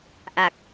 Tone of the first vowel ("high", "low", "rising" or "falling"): low